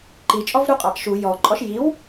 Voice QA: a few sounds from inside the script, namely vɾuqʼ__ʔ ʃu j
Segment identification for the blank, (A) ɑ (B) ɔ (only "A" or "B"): A